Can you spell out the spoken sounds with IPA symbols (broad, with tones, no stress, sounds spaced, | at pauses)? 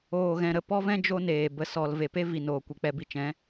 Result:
oː˧ ɣ ɛ̃˧ ɾ ə˦˨ p ɔ˦ v ɛ̃˦ d͡ʒ o˦ n eː˨ b ə˧ s ɔ˧ l v e˨ p e˦ v i˨ n oː˨ kʷ i˨ k͡p ɛ˧ b i˧ t͡ʃ ɛ̃˨˦